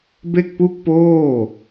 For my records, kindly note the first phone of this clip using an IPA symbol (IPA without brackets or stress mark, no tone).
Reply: b